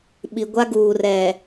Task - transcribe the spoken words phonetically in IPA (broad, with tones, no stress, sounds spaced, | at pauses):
ɓ i˨ ɡʷ a˦ ɡ uː˨ r ɛ˨